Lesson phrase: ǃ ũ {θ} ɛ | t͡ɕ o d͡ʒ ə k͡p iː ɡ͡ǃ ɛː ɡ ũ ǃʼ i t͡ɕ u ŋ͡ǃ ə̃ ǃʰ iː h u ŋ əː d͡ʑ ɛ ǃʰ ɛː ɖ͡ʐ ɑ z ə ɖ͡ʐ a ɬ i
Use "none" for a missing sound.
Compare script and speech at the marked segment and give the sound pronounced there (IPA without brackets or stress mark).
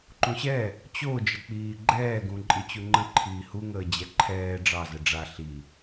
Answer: ɕ